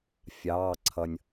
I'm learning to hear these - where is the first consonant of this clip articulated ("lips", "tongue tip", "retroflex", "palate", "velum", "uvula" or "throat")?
lips